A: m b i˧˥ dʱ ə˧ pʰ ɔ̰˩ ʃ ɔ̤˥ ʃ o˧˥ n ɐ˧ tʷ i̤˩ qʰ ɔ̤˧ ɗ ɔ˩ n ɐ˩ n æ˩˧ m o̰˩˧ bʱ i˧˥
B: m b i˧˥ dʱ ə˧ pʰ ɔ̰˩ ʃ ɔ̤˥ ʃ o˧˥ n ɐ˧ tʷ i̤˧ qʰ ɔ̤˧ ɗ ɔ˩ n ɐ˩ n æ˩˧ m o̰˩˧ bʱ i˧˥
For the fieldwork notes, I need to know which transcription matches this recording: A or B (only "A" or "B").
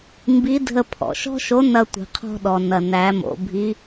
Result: A